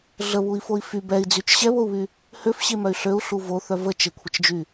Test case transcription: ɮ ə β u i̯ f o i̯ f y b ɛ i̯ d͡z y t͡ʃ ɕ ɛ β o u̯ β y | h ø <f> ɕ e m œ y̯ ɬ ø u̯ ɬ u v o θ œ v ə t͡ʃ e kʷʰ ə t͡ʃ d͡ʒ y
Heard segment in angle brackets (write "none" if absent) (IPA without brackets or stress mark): f